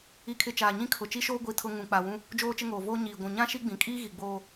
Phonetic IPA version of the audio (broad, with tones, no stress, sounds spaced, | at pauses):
i˨ kʰ ɪ˨ t͡ʃ aː˨ ɲ ĩ˦ kʰ ʊ˨ t͡ʃ i˦ ʃ oː˦ ɡʷ i˦ tʰ ʊ˦ ŋ ũ˨ k͡p a˨ w ũ˦ | d͡ʒ oː˦ t͡ʃ ɪ˦ ŋ oː˨ v oː˦ ɲ iː˨ ɡʷ ũ˨ ɲ ã˦ ʃ i˦ ɡ͡b ĩ˨ kʼ iː˦ ɣ i˨ ɡ͡b oː˦